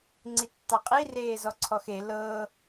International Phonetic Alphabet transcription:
ŋ͡ǀ i tː ɑ qʼ i r eː z ɔ ǀʰ ɔ x e l ɤː

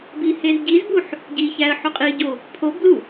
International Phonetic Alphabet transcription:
b i h e z ɟ i z b u ħ | ɟ i ç æ ə̯ ħ o qʼ i ɟ o | pʰ o b l u

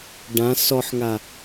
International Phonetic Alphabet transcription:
ɖ ã s ɔ ħ ŋ a

